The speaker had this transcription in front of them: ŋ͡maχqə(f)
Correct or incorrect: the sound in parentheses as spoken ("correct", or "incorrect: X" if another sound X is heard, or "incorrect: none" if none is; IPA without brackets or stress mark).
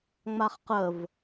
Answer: incorrect: v